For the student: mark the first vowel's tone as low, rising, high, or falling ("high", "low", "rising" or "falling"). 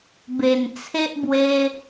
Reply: low